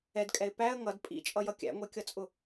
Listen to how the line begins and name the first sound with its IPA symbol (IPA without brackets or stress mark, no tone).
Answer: ɛ